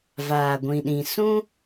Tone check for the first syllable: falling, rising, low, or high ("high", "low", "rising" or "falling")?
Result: low